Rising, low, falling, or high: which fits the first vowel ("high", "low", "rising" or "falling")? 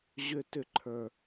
high